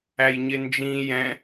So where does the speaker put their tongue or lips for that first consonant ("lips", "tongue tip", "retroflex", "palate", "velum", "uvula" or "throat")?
palate